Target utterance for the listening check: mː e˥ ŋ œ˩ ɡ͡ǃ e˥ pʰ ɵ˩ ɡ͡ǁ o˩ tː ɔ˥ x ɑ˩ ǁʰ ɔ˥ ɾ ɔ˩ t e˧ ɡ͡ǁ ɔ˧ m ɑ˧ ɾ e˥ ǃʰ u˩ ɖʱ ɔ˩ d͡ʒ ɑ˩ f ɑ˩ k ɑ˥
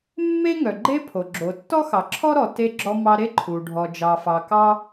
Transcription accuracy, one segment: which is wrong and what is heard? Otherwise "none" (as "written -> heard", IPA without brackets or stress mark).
ɵ˩ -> o˩